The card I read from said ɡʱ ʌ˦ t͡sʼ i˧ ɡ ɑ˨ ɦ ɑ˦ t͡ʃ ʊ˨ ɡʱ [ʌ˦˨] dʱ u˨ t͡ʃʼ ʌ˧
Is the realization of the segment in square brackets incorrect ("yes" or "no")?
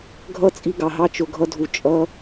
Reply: yes